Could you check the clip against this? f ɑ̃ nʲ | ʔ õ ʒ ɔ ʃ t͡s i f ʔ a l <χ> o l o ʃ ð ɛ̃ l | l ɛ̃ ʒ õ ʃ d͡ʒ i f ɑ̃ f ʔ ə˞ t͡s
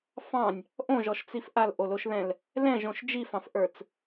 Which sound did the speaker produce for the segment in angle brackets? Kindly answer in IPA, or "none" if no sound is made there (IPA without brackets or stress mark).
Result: ʔ